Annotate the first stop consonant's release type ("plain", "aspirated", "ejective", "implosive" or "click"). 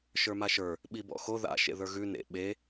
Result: implosive